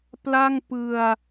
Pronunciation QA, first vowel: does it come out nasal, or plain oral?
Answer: oral